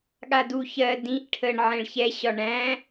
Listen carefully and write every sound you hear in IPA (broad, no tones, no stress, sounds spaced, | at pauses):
ɠ a d u ç ɜ d ĩ ʔ ʈʰ ə ɳ ʕ ɛ̃ ɭ ç ɛ ɕ ɒ ɳ æ̃